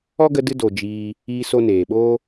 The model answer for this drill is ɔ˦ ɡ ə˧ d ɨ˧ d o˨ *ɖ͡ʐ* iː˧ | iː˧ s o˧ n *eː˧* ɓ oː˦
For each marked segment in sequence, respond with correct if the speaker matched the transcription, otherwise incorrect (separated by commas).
incorrect, incorrect